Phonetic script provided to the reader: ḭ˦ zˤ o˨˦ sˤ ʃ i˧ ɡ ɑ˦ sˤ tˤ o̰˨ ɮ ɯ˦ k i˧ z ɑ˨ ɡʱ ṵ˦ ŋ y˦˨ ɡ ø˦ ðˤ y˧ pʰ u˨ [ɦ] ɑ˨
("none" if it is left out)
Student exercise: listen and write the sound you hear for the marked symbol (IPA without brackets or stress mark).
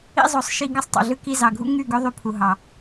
ɦ